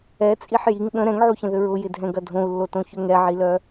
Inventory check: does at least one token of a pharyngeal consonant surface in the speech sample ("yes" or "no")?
yes